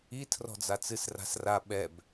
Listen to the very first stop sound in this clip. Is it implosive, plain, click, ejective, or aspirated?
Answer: aspirated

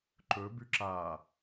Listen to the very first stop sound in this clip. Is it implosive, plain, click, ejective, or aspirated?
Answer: click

